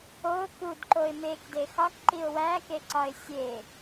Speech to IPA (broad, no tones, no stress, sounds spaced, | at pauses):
o k u d ǃ o ɪ̯ m e k d e x ɒ k ǃ i ʊ̯ w æ k e ǀ ɒ ɪ̯ sʲ e